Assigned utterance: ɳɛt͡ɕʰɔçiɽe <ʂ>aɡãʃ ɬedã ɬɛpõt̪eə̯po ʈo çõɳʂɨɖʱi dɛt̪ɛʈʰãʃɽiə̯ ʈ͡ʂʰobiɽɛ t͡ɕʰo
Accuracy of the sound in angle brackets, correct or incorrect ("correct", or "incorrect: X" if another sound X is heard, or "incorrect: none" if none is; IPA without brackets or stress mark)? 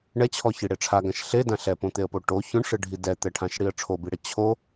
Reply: incorrect: ʈ͡ʂʰ